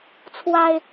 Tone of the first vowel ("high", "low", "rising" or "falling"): low